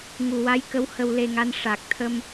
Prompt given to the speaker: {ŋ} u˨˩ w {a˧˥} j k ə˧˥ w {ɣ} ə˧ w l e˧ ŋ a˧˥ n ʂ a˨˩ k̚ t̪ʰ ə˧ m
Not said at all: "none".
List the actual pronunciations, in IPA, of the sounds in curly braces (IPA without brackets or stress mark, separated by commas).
ŋ, a˧˥, h